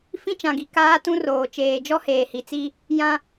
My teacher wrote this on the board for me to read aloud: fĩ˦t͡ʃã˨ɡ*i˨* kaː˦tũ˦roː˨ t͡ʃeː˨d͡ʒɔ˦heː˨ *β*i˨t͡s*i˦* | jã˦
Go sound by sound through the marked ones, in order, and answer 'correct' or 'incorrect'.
correct, incorrect, correct

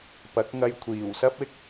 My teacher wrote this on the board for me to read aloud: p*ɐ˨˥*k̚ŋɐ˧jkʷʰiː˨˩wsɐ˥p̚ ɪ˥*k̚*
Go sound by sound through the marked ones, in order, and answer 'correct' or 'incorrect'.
correct, correct

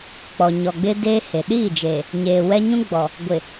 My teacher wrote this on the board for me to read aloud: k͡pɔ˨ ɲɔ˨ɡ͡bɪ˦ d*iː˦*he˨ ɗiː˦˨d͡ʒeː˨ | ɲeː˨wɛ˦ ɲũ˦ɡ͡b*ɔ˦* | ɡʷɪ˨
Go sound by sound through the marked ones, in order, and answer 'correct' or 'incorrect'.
incorrect, incorrect

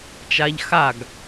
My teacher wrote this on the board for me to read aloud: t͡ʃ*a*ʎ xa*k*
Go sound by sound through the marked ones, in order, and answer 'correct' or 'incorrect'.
correct, incorrect

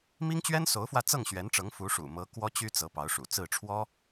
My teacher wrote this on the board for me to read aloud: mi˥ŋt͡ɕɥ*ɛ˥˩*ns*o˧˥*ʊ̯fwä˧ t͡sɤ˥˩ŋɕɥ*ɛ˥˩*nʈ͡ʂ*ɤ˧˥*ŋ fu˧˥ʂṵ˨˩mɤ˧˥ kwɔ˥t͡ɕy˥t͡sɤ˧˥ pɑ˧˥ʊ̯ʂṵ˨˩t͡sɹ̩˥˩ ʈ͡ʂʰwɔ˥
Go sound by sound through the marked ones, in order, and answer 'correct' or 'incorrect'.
incorrect, correct, incorrect, correct

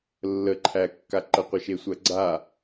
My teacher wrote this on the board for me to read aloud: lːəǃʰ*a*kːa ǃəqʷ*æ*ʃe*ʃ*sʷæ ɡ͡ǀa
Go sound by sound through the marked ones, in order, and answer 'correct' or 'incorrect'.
incorrect, incorrect, incorrect

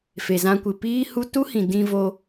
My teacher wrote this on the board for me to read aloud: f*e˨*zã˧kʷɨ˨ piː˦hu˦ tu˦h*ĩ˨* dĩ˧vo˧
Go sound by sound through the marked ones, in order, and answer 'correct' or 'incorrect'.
correct, correct

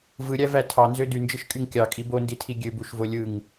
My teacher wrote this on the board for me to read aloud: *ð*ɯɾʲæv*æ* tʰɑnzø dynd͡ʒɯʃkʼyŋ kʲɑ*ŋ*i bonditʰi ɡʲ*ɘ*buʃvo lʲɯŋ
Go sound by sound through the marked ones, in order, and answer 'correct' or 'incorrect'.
incorrect, correct, incorrect, incorrect

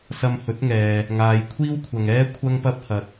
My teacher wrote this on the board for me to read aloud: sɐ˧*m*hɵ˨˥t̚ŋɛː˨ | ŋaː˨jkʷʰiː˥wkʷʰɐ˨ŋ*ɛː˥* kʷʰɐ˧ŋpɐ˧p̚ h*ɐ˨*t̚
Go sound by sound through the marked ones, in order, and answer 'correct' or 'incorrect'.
correct, correct, correct

